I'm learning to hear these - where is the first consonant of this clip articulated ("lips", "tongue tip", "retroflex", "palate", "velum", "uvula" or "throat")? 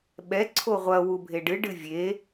lips